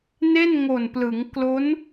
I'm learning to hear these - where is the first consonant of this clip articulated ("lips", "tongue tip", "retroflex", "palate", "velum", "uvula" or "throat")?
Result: tongue tip